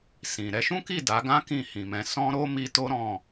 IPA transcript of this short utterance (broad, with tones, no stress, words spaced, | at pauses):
sĩ˨ ɾɛ˨˦ʃũ˦ki˦˨ da˨˦ ɡã˦ kĩ˦˨hĩ˨mɛ̃˨˦ sɔ̃˦ɾo˦ mi˧to˦ ɾɔ̃˦˨